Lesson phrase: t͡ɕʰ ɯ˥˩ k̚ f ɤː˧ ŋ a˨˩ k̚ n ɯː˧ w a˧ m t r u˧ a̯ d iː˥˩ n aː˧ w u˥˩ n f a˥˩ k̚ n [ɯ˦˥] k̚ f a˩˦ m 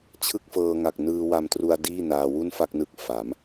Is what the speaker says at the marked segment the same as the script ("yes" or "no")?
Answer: yes